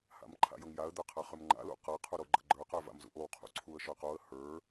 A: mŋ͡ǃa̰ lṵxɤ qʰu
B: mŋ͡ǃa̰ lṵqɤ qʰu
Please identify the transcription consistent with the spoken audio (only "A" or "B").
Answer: B